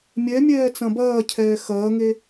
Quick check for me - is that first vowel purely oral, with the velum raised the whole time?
yes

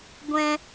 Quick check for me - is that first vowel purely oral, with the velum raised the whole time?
no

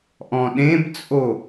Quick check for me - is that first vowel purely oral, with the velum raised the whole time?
no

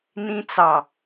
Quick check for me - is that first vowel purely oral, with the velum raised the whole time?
no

